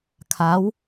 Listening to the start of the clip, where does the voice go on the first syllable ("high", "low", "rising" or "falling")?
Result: rising